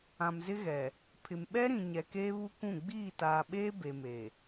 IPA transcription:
ã˨ m z ɪ˦ ɣ ɛ˨ | pʰ ɪ˨ m ɓ ɛ˦ ɾ ĩ˨ ɲ ɛ˨ k eː˦ β u˦ kʷ ũ˦˨ ɡ͡b iː˦˨ t aː˨ ɓ eː˦ b e˨ m e˨

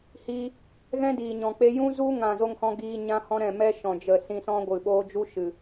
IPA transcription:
h iː˧ | ɣ ɛ̃˦ d iː˨ ɲ ɔ̃˨ k͡p e˧ j ũ˦ z u˦ ŋ ã˦˨ z o˦ ŋ h ɔ̃˦ ɡ iː˧ ɲ ã˦ h ɔ̃˦ ɾ ɛ̃˦˨ m ɛ˦ ʃ ɔ̃˨ d͡ʒ ə˨ s ĩ˧ s ɔ̃˦ ɡʷ ɨ˨ ɓ oː˦ d͡ʒ u˦ ʃ ɨ˨

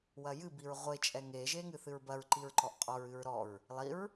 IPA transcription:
w ɐ j ɨ b i ɹ ʁʷ e t͡ʃʼ ɛ ŋ e ʒ e ŋ ɨ θ ɨ ɹ b ɐ ɹ ǃ i ɹ ǃ ɔ ʔ qʼ ɔ ɹ ɨ ɹ ɾ ɔ ɹ | lˠ i ɹ

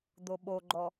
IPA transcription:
d̪ o ɓ o ɡ͡ǃ ɔ

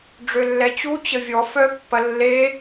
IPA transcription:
ɖ͡ʐ ø lː ɛ t͡ɕ u t͡ɕ ə vʲ ɔ f œ pː ɐ lː e

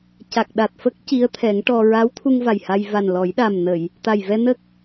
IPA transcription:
c a˨˩ k̚ ɗ a˨˩ t̚ f ə˦˥ k̚ c i˧˥ ə̯ t̪ʰ ɛ˨˩˦ ŋ ʈ ɔ˧ ɹ a˧˥ w t̪ʰ u˧ ŋ v a˨˩ j h a˧ j v a˨˩ n l ɔ˨˩˦ j ɗ a˨˩ m n ə˨˩˨ j | t̪ a˨˩ j v ɛ˧ n ə˦˥ k̚

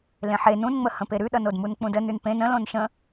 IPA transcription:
l ẽ ħ e n ũ n ŋ͡m ə h ə̃ p e ɾ ʉ ɗ ʌ n o d m u n k͡p ũ d ə n ʉ n p ẽ n ə̃ l õ n ʃ ə̃

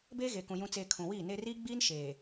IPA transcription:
b eː˦ ɣ e˨ k ũ˨ j ũ˨ t͡s eː˨ kʰ ũ˨ w iː˦˨ n eː˦ r iː˦ ɡ͡b iː˦ n ʃ eː˨

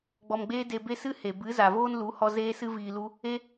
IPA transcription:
ɡ͡b ɔ˧ m ɡ͡b eː˦ d e˧ b e˦ s ɨ˦ h e˨ b ɨ˨˦ z a˨ v oː˦ n l u˨˦ h ɔ˧ z eː˦ s ɨ˦ v iː˧ l u˦ | e˦

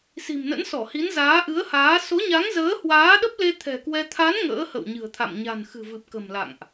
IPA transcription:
s i̤˨˩ m n ə̰˧˥ n s ɔ˧˩ h i˨˦ n z aː˨˦ ʔ ɨ˨˦ ə̯ h aː˨˦ s o˨˦ ɲ a˨˦ ŋ z əː˨˦ h w aː˨˦ ɗ ə˦˥ p̚ l e˧ t̪ʰ ɛ̤˨˩ k w ɛ˧ t̪ʰ a˨˦ n ŋ ə̰ː˧˥ h ə̰˧˨ w ɲ ɨ̤˨˩ ə̯ t̪ʰ a̰˧˨ m ɲ a̤˨˩ n x ɨ̤˨˩ v ɨ˨˩ p̚ k ə̤˨˩ m l a̰˧˨ ŋ ʔ

